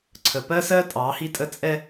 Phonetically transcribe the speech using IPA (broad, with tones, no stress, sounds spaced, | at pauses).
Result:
ǀʰ ə˨ p ɜ˦ s ɜ˦ tʼ ɑ˨˦ h i˦ tʼ ə˦ t͡sʼ ɛ˦